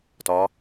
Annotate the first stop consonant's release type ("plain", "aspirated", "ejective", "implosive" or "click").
plain